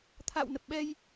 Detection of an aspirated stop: present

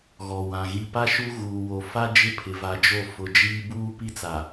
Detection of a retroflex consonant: absent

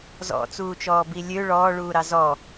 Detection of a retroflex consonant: present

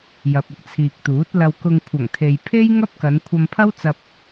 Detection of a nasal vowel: absent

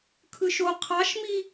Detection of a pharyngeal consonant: absent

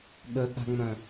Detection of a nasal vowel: present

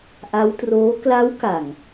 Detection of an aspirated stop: absent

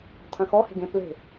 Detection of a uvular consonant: absent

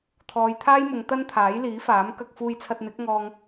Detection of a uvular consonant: absent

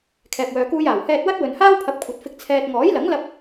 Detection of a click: absent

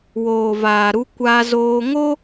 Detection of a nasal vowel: absent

